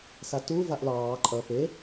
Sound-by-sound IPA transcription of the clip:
s a t u v a ʔ l ɑː ǃʼ ʌ p e

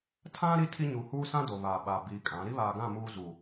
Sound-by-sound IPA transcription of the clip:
tʰ ã˦ ɾ i˦ tʰ i˦ ɲ u˨ h uː˦ s ã˦ d o˨ β aː˨ ɓ a˨ b iː˨ kʼ ã˨˦ ɾ i˦ β aː˨ ɡ ã˦˨ m uː˦ z uː˨

